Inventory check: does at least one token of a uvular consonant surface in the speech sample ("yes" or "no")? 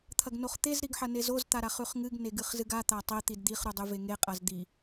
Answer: yes